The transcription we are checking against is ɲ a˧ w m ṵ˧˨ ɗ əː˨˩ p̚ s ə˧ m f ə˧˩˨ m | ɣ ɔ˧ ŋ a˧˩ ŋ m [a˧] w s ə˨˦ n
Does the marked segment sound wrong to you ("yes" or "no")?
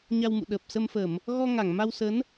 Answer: no